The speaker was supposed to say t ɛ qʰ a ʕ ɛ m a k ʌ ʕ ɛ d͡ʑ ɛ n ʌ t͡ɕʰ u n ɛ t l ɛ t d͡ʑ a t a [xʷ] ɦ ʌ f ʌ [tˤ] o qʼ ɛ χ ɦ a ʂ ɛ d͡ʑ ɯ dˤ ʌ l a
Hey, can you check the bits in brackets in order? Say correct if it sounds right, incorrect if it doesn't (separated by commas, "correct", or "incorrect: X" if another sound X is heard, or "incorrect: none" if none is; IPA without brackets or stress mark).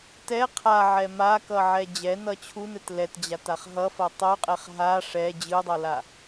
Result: incorrect: χ, correct